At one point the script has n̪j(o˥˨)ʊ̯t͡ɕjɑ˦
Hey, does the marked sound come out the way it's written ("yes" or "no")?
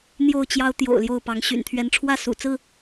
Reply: yes